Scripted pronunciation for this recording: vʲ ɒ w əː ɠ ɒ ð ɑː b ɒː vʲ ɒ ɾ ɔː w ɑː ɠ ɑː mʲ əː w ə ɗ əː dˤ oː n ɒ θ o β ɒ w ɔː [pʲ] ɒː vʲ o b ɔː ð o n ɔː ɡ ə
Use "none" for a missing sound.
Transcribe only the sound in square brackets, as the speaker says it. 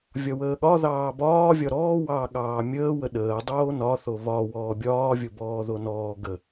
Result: bʲ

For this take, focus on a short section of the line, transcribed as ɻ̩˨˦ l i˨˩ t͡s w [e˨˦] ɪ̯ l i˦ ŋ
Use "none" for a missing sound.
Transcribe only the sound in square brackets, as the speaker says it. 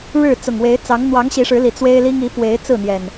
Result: e˦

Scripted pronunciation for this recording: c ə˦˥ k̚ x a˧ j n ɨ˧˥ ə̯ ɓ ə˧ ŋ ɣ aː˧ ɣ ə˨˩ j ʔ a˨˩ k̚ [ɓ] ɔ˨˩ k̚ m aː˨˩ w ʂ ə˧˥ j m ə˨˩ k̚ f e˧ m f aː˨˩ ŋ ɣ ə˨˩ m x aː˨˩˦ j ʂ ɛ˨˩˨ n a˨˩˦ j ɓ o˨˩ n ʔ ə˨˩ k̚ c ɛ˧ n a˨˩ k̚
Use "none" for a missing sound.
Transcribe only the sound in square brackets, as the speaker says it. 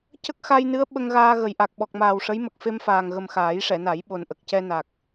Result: ɓ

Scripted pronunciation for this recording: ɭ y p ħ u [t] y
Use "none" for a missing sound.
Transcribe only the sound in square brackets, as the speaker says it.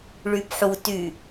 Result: t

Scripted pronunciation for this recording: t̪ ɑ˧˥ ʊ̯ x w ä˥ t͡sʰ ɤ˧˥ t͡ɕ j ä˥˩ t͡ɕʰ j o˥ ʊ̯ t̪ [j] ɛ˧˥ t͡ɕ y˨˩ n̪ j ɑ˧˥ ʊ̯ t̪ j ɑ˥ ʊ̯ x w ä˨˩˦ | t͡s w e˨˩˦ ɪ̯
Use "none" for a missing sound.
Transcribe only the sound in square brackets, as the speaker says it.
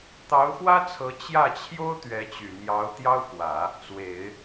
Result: ɥ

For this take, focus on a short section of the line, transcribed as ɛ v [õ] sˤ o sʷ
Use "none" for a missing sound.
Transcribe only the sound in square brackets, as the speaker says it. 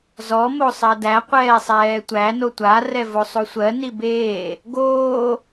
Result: o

